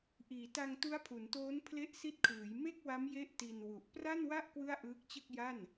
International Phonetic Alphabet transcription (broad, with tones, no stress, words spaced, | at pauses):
ʔiː˩˦ta˧ŋtu˦˥a̯pʰu˩˦n toː˦˥npʰle˦˥ʔsi˦˥t̚kʰɯː˩˦j me˥˩k̚wa˦˥mje˦˥ʔ ti˧nwu˨˩ʔ pra˥˩nwa˥˩ʔ kwɯ˥˩a̯ʔɯː˦˥k̚t͡ɕɯ˥˩k̚ ja˥˩n